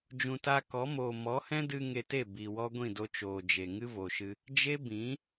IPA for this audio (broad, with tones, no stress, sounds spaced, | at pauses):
d͡ʒ ũ˨ t a˧ k ɔ˨˦ m oː˨ m ɔ˨˦ h ɛ̃˦ d ɨ˧ ŋ e˧ t e˦˨ b iː˨ w ɔ˦ ɡʷ ĩ˦˨ d o˧ t͡ʃ oː˨ d͡ʒ e˨ ŋ ɨ˦ v o˨ ʃ ɨ˧ | d͡ʒ e˦ b ĩ˨˦